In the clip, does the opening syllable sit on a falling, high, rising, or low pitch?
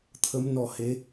rising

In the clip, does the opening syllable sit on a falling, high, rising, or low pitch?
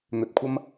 low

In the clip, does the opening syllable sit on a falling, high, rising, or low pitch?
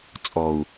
low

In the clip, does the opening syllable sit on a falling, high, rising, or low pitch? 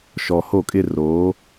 low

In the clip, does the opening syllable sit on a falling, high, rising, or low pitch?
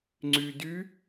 low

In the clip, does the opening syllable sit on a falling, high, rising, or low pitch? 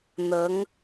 rising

